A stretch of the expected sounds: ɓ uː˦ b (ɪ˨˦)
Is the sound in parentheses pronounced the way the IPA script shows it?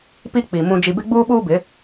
yes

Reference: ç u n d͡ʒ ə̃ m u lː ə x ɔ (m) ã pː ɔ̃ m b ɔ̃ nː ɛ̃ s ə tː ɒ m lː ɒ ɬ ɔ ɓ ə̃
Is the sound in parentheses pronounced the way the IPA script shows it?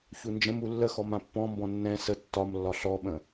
yes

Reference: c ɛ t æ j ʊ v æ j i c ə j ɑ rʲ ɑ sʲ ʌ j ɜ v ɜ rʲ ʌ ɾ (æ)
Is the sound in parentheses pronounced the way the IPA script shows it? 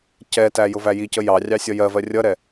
no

